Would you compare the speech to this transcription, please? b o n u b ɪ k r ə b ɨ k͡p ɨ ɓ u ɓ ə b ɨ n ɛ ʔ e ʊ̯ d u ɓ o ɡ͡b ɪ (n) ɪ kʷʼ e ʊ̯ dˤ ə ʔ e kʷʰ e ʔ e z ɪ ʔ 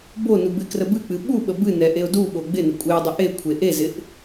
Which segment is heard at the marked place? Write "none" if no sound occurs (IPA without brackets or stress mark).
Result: n